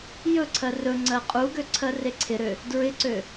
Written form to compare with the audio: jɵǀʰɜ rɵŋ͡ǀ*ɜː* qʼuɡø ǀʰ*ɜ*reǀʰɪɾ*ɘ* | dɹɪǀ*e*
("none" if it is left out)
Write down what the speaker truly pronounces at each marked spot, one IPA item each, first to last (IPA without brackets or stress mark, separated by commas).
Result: ɜ, ɜ, ø, ø